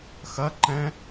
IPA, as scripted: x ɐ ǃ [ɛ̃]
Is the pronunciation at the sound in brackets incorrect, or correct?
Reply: correct